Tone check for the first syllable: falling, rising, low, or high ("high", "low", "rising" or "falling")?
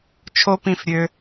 high